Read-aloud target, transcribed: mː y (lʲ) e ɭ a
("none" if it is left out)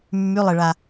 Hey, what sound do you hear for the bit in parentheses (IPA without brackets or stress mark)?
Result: lˠ